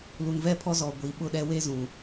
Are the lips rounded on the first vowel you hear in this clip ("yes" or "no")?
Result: yes